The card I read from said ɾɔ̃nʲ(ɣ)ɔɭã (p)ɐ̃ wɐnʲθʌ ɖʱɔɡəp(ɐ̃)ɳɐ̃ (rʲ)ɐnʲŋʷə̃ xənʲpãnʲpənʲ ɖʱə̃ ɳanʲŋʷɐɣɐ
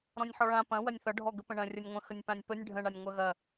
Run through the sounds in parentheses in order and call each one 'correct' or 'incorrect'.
incorrect: ħ, correct, incorrect: ə̃, correct

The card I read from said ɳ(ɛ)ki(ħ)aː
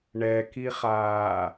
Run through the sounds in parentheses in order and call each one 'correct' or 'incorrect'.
correct, incorrect: χ

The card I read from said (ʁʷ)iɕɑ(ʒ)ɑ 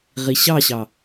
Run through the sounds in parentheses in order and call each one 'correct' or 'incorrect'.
incorrect: ʁ, incorrect: ɕ

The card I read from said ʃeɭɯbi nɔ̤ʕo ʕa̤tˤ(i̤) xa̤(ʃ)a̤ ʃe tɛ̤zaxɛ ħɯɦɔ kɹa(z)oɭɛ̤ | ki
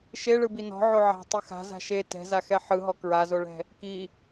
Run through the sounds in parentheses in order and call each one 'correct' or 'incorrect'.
incorrect: i, incorrect: z, correct

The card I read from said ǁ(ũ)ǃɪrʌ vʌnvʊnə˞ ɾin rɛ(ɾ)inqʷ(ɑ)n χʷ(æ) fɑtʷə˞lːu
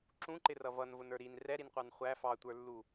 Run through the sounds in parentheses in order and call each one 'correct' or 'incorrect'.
correct, correct, correct, correct

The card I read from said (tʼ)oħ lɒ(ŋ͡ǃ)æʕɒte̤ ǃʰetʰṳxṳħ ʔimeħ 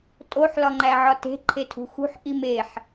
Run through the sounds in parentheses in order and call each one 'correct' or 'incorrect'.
correct, correct

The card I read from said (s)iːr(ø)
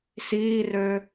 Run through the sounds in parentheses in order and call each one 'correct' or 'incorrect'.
correct, correct

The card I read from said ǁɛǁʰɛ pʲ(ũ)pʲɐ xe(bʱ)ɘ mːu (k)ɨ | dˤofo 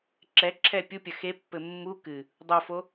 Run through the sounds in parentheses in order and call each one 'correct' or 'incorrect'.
incorrect: u, incorrect: pː, correct

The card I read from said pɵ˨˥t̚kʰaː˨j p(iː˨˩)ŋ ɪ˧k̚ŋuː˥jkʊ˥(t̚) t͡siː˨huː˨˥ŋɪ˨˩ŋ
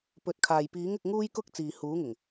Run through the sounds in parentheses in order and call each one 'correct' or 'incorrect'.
incorrect: iː˨˥, incorrect: k̚

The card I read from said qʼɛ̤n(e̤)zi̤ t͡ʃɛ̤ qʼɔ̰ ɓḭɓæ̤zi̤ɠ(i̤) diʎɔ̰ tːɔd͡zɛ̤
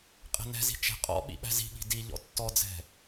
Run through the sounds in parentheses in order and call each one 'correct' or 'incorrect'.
incorrect: ɛ̤, correct

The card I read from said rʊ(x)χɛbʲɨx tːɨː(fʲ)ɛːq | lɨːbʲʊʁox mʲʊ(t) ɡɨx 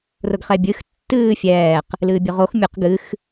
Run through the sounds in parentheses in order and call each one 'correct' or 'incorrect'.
incorrect: ɡ, correct, incorrect: q

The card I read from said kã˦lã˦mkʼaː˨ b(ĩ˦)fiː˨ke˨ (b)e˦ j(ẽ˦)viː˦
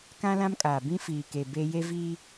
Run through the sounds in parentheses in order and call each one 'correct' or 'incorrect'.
correct, correct, incorrect: e˦

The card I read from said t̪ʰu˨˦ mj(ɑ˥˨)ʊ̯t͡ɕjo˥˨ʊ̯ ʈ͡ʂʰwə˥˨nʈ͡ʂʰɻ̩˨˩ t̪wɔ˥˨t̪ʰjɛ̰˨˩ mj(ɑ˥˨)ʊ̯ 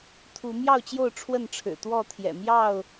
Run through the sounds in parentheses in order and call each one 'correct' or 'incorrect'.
correct, correct

